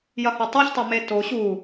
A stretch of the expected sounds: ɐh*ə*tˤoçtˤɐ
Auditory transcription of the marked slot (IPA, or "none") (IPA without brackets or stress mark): ɐ